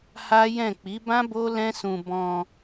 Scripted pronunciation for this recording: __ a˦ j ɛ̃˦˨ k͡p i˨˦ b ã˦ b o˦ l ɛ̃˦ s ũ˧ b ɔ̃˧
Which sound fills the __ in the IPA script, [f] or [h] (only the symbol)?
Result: h